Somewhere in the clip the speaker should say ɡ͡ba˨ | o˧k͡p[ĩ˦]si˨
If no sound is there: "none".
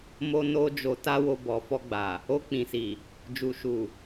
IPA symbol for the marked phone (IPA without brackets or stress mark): ĩ˨